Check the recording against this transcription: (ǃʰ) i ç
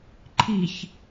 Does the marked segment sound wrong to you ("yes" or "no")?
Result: no